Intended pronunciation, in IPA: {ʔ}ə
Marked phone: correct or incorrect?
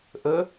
correct